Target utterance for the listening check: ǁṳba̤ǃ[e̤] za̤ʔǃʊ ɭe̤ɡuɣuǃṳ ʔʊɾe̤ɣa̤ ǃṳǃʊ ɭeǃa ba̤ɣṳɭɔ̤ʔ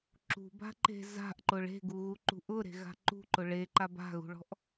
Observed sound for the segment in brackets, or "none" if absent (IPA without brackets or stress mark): e̤